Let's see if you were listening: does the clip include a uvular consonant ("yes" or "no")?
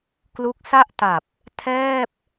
no